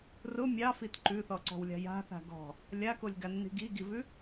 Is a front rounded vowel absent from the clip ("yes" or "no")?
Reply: yes